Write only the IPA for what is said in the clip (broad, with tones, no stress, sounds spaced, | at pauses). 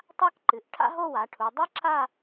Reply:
tˤ a˥ k ǃ ɨ˩˧ ʔ ʈʰ a̰˥ ɦ o˥˧ w a˩˧ ʈʰ u˩˧ dˤ ɐ˥ ǁ a˥˧